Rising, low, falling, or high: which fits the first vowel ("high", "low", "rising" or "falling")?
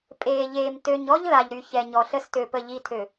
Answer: low